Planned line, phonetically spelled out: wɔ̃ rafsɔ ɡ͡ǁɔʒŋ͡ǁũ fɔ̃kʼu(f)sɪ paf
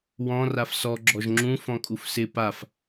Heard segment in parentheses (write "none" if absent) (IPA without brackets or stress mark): f